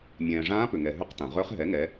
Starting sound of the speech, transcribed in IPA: mʲ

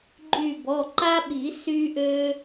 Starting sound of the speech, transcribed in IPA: ɡ͡ǃ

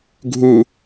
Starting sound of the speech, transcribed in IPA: ɡʱ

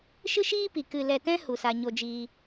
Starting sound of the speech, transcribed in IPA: ʃ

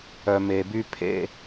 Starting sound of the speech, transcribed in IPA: œ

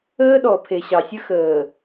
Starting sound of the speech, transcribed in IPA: əː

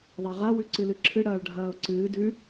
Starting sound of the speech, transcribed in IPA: ðˤ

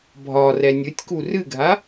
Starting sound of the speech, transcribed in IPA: bʱ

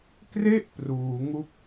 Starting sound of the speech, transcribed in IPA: k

